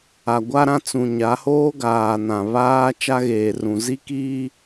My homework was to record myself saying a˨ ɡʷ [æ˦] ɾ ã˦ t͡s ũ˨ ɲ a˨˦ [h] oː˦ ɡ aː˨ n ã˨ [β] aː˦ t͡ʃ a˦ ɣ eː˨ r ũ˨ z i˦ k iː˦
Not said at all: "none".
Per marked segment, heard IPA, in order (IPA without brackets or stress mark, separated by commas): a˦, h, β